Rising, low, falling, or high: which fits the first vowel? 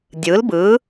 rising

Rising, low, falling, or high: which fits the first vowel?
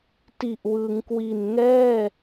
low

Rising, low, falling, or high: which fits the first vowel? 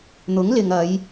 rising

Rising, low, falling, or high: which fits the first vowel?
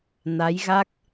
rising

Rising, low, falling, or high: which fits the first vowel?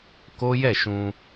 high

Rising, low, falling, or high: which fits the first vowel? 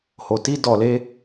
low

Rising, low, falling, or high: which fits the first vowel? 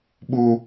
high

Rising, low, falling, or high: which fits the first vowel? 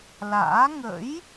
rising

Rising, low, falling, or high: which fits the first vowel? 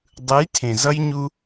rising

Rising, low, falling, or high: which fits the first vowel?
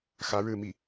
rising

